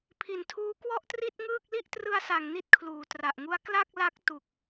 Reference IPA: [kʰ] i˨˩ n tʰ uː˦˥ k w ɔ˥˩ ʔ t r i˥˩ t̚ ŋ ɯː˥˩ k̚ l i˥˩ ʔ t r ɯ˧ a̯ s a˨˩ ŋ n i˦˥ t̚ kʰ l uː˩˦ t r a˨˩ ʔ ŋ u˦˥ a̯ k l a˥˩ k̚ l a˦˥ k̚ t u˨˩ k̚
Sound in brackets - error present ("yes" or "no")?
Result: yes